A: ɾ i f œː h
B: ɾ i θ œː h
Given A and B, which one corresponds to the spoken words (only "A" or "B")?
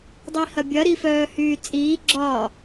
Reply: A